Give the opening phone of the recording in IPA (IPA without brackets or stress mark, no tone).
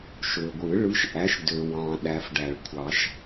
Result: ʃ